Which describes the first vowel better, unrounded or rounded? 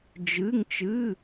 unrounded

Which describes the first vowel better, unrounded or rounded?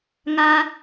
unrounded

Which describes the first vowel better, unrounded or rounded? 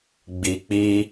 unrounded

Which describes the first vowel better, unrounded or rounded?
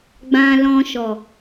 unrounded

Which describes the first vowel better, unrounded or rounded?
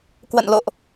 unrounded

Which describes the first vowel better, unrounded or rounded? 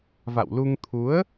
unrounded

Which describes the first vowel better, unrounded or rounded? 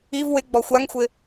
unrounded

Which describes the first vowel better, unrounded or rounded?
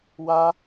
unrounded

